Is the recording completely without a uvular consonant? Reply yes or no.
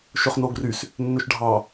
no